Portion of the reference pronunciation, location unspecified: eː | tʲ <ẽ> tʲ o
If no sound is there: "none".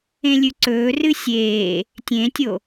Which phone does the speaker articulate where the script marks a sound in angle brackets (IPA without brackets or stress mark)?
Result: ẽ